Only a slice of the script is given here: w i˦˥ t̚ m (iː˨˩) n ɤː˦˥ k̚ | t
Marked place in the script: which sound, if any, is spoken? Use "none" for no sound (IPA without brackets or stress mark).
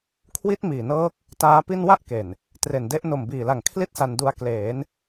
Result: iː˨˩